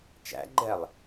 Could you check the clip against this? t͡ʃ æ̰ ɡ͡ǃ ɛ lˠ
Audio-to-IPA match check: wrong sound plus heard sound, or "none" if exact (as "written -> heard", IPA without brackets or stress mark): none